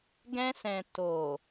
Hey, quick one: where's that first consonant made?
velum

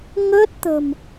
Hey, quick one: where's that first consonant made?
velum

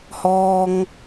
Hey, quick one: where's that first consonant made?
throat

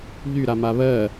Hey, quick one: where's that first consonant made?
palate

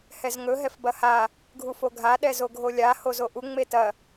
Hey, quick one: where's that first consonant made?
throat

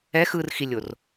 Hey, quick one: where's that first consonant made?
velum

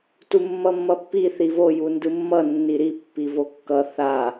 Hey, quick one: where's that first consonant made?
tongue tip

